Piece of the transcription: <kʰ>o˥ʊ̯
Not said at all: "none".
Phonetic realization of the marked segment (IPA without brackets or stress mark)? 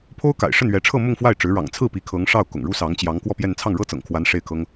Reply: pʰ